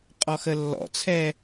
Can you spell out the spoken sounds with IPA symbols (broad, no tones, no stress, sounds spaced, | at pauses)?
qʼ ɔ x ə lː ɔ̰ t͡sʰ ɛː